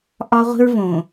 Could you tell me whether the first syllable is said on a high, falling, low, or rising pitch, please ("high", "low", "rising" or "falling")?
high